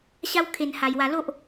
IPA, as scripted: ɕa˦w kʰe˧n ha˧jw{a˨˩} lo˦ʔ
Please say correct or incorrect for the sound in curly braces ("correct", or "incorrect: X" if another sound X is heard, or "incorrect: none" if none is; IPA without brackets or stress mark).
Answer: incorrect: a˧